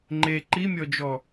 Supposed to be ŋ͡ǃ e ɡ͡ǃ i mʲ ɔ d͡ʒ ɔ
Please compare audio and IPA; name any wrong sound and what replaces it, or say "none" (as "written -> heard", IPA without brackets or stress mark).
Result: ɡ͡ǃ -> ǃ